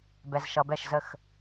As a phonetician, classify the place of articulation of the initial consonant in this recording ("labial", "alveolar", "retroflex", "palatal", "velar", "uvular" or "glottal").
labial